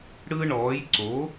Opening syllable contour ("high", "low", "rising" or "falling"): high